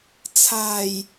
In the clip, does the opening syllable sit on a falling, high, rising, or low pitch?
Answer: low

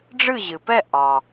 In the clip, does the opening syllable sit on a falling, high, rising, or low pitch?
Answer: falling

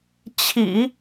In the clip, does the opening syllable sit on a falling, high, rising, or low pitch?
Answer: low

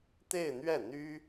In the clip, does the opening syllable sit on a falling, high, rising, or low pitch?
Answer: falling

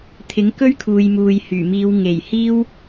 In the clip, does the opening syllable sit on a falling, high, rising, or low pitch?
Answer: rising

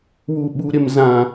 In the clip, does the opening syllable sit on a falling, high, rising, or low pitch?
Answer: low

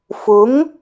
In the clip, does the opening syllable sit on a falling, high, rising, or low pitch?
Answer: rising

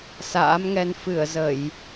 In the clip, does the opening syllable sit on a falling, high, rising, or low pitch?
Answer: rising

